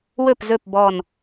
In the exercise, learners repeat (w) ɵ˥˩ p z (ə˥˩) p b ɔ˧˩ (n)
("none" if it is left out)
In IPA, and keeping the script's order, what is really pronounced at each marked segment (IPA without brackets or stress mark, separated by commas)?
w, ɵ˥˩, n